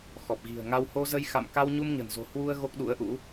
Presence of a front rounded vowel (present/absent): absent